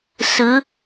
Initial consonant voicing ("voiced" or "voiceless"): voiceless